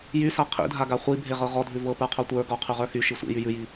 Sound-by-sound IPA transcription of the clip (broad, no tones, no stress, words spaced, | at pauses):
jysa qʰḭdʱaɡa χʷi bʱeʁɤʁɔdʱʉ vɤ pə˞qʰotʷə˞ ɡɔ qʰʉʁə˞xy ʃisʷḭ jyjʉji